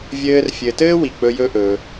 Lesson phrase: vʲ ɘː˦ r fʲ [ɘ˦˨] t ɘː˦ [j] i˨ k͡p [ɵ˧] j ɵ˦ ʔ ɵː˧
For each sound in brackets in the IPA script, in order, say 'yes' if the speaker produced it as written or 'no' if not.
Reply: no, no, yes

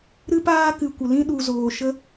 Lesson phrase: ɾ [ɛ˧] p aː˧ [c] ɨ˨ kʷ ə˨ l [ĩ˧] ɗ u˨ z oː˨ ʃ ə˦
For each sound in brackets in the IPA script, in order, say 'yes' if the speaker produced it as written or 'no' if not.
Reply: no, no, yes

